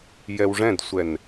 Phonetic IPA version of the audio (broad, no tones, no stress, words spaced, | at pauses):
jɛwʐɛ̃dsʷɛn